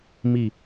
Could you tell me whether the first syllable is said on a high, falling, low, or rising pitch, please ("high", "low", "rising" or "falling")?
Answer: low